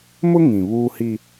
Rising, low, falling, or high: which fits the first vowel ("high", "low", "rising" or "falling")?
high